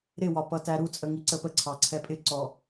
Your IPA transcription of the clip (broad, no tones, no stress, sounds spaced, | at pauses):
ɾ ɪ w ɒ p ʌ t æ ɾ u t͡sʼ ə ŋ i ǀ ə p ə ǀʰ ɑ ǀʰ ɛ pʼ ɪ ǀ ɔ